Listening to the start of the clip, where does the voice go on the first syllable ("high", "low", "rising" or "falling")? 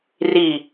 low